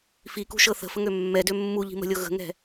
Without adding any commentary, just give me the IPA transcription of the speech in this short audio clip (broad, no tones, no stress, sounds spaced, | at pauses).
f i k ṳ ʃ ɤ θ ə̤ f ə ŋ ø mː ɛ d ø mː u ʎ i̤ m ə̤ lʲ ɤ ɣ ə̤ ŋ ɛ̤